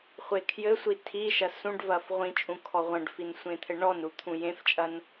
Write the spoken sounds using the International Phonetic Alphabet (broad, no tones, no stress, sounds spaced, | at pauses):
χʷ e kʰ j ɘ sʷ i tʰ i ʃ ɐ s ũ ɖ v ɐ f ʁʷ ĩ t͡ʃʼ ũ kʰ ɔ ʁʷ ɐ̃ ɖ f i n sʷ ẽ t̪ʰ ɘ ɳ ɔ n ɾ u t̪ʰ ũ j ẽ f t͡ʃʼ ɐ n